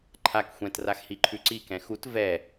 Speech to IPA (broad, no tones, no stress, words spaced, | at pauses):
ǃʰak xʷɛ̃t raxhiǃʰʉǀi kɛ̃xut vɛ